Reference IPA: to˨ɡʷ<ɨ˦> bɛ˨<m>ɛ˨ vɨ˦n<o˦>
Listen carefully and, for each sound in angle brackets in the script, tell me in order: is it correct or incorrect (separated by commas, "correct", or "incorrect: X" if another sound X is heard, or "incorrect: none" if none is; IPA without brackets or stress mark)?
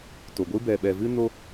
correct, incorrect: ɓ, correct